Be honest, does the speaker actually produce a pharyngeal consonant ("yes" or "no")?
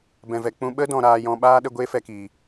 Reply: no